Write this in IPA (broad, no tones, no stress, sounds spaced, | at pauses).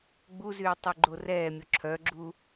ɡ͡b u z yː tˤ y ɡ͡ǃ o r ɛː mʲ o ǁʰ œ ɡ͡ǁ u